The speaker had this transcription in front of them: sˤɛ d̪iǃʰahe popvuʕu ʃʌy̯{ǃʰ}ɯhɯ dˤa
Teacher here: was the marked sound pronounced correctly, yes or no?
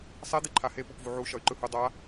no